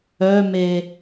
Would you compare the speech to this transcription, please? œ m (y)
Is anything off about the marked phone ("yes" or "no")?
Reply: yes